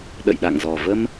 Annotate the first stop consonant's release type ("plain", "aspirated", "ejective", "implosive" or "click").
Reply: implosive